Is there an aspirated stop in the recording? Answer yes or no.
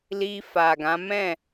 no